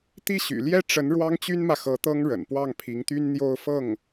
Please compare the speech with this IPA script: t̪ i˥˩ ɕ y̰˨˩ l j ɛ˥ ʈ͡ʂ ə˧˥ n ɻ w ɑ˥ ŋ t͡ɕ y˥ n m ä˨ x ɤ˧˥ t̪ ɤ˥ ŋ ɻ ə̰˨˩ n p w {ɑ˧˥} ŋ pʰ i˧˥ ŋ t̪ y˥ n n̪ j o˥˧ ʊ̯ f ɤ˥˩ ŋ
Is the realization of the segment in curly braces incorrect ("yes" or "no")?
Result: yes